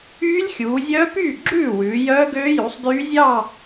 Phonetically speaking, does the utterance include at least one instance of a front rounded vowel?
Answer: yes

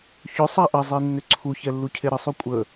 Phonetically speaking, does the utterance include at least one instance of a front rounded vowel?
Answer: yes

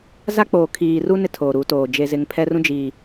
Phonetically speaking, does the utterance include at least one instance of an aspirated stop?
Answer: yes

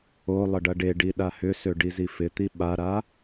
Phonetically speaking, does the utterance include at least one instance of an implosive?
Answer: yes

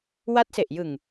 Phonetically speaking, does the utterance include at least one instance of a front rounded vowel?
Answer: no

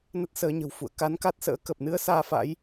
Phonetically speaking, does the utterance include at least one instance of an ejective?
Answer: no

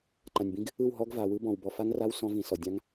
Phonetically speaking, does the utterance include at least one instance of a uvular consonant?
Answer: no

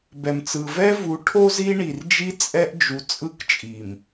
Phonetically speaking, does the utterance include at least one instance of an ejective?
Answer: yes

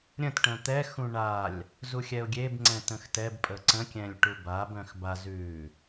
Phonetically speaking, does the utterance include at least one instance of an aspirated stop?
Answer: no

